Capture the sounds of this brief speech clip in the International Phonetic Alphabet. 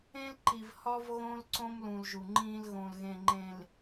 ẽ˦ l ǃ i˨ v h ɒ˦ v ɣ õ˦ l ǀ õ˦ m l ũ˨ l ʒ u˨ ŋ͡ǃ ĩ˦ l ɣ õ˨ l ɣ ẽ˨ ŋ͡ǃ ẽ˨ l

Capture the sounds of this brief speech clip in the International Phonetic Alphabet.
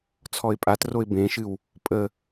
t͡sʰ ɔ ɪ̯ pʼ a t r o ɪ̯ b ẽ ʃ ɨ w | pʼ ə

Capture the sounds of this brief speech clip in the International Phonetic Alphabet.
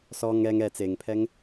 s ɔ ŋ ɛ ŋ ɛ t͡s e ŋ pʰ ɛ ŋ

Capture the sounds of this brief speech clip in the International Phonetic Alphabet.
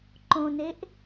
ǃ õ n e ʔ

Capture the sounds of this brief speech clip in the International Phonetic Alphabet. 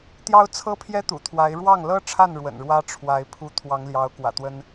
t̪ j ɑ˥ ʊ̯ t͡sʰ ɤ˥ pʰ j ɛ˥ t̪ ṵ˨˩ t̪ʰ w a˧˥ ɪ̯ ɻ w ɑ˥˩ ŋ l ɤ˥ ʈ͡ʂʰ a˥˩ n ɻ w ə̰˨˩ n ɻ w ä˥ ʈ͡ʂʰ w a˧˥ ɪ̯ pʰ u˥˩ t̪ʰ w ɑ˧˥ ŋ l j ɑ˧˥ ʊ̯ k w ä̰˨˩ t̪ w ə˥ n

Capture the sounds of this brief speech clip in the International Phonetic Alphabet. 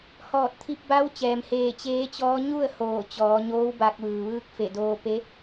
h ɔː˧˩ t̚ t̪ʰ i˧ p̚ b a˧˥ w t͡ɕ ɛː˩ m h eː˧˩ t͡ɕ eː˧˥ t͡ɕ ɔː˧˥ ɲ u˥˨ ə̯ h oː˧˩ t͡ɕ ɔː˩˧ ɲ oː˧˥ w b a˧ k̚ ʋ ɯː˩ ʋ ɯː˧ k̚ f e˧˩ d oː˧ p e˧˥

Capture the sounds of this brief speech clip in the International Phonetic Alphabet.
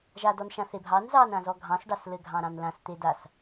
ʒ a d ɔ n ʃ ã θ e bʱ ɑ n z ɑ n ã z ɔ ɡʱ ɑ̃ s ɖ ɑ s l ɘ ɡʱ ɑ̃ ɾ ɑ̃ n l ã s t̪ e d a s

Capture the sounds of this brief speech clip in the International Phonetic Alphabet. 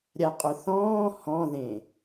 ɾʲ a qʼ ʊ θ ɔ̃ː h ɔ̃ ð ẽ

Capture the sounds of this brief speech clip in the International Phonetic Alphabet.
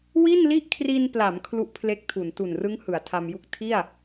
w i˥˩ n l i˥˩ ʔ kʰ r i˧ n p l a˩˦ m kʰ l u˦˥ ʔ pʰ l e˦˥ k̚ tʰ u˩˦ n t u˨˩ n r ɯ˦˥ ŋ h ɯ˩˦ a̯ tʰ a˧ m j u˥˩ k̚ tʰ i˥˩ a̯

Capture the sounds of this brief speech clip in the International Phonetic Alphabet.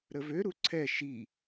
ɾ ə v ø ɾ u ǀʰ ɛ ʃ i

